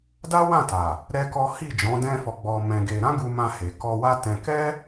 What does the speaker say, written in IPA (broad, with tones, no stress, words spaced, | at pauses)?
da˦wã˦˨ ta˨ | ɾɛ˦kɔ˦ hi˦˨ d͡ʒɔ̃˨˦dɛ̃˦fɔ˧ ɡ͡bɔ˧mɛ̃˧ɡe˧ ɾã˦ɡu˧mã˧he˨ kɔ˧wa˦tɛ̃˧ kɛ˦